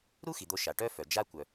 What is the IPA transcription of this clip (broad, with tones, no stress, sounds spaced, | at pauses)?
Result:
ɾ u˥ x i˩ d̪ o˧ ʃ a˩ ʈ œ˥ f œ˩ d͡ʒ a˥ kʷ œ˩